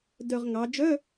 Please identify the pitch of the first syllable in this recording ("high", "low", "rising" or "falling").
low